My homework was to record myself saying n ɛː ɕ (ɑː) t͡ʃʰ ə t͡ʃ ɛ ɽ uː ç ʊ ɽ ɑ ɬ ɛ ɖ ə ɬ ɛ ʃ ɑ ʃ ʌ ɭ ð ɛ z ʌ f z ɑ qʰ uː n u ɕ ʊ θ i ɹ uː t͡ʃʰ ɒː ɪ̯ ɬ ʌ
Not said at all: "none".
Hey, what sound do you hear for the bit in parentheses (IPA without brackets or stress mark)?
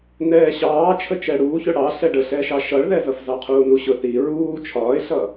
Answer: ɑː